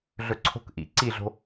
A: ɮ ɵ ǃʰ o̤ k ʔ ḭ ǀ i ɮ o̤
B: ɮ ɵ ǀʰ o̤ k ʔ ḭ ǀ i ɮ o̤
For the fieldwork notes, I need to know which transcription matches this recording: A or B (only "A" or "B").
B